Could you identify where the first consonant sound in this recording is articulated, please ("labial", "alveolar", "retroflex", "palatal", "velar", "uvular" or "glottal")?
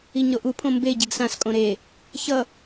palatal